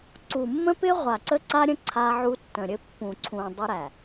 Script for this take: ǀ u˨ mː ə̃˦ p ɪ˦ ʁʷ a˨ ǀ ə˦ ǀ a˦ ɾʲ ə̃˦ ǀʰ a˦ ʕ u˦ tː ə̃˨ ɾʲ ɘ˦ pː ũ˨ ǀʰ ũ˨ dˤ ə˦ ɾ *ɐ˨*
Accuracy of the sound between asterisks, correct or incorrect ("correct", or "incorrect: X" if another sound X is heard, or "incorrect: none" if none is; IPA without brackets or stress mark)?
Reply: incorrect: æ˨